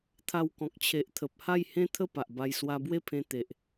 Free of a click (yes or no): yes